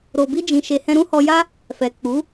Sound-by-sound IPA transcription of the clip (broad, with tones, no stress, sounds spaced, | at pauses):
ɾ o˨ b i˧ d͡ʒ ĩ˨ ʃ e˨ h ɛ̃˧ ɾ ũ˦ h ɔ˧ j a˦ | f ɛ˨ k͡p u˨˦